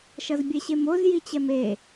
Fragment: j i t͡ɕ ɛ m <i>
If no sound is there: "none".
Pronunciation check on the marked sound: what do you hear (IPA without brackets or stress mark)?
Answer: e